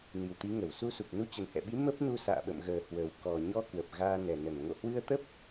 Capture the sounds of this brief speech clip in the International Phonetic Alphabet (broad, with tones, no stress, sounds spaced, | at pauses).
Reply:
n i˨˩ w t̪ i˨˦ ŋ ə˧˩ w s u˧ s u˨˩ k̚ n u˧ t͡ɕ ə˨˩ n h ɛ̰˧˨ ɓ i˨˦ m ə˦˥ p̚ n u˧ s a̰ː˧˨ ɓ ə̰˧˨ m ɣ əː˨˩ h w ə˨˩ w k ɔ˨˩ ɲ ɔ˧ k w ə˨˩ p̚ ɣ aː˧ n ɛ˨˩ n ə˧˩ n ŋ o̰˧˨ h w ɨ˧ ə̯ t̪ ə˦˥ p̚